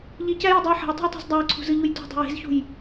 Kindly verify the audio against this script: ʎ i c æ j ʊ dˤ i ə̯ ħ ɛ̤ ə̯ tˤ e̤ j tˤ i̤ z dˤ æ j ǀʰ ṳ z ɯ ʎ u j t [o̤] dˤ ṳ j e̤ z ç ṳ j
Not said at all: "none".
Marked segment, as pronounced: ṳ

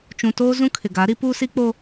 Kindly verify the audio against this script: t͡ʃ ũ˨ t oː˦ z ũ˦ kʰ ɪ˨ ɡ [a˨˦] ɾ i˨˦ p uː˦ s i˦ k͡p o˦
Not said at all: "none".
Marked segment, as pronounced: a˨˦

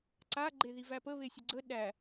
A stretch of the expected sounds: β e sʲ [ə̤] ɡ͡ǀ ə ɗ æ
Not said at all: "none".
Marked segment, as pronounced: ə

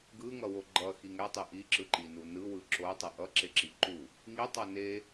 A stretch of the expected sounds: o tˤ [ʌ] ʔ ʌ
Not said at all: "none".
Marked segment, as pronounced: ʌ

